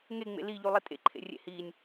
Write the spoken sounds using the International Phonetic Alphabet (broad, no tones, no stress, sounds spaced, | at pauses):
ŋ e ŋ͡m ḛ l i ʎ u lˠ i tʼ ḛ ǃʰ ḛ rʲ ḛ h i nʲ